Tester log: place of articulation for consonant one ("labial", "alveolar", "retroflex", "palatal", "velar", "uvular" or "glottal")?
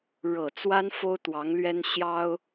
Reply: retroflex